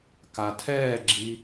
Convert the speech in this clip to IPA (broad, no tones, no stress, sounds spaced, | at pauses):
k a tʰ ɛː ɡ͡ǁ i